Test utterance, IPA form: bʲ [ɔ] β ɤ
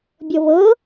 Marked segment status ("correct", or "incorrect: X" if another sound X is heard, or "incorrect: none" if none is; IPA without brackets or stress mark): incorrect: ɤ